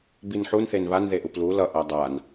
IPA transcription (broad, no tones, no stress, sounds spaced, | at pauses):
b i n ħ u n θ e n β a n ð e ʔ u p l u l ʌ ʔ a dˤ a n